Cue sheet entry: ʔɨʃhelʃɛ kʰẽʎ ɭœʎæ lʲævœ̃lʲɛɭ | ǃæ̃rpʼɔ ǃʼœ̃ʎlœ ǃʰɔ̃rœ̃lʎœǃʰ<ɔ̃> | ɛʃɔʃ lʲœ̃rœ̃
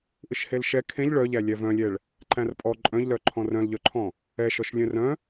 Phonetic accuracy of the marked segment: correct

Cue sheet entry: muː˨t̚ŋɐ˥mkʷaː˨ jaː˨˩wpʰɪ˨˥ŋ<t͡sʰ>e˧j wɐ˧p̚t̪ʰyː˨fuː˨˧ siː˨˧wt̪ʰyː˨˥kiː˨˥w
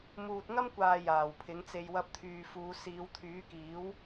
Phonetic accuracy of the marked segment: incorrect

